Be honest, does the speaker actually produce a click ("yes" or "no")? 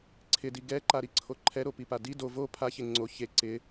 yes